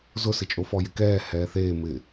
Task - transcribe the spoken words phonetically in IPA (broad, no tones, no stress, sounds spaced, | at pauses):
z ʊ s ɪ t͡ʃʼ o f ɔ j ɪ k ɛː h ɛː θ eː m ɪ